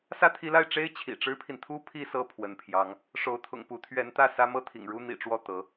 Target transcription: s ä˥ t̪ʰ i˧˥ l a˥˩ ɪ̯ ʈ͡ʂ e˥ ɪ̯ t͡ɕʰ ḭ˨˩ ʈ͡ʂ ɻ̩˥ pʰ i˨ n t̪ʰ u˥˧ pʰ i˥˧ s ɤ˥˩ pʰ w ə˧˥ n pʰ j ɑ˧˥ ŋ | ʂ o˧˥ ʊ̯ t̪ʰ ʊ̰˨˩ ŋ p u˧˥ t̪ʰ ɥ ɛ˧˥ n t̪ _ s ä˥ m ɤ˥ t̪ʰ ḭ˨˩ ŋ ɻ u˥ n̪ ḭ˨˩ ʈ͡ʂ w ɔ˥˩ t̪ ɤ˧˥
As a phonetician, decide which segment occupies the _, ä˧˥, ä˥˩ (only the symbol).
ä˥˩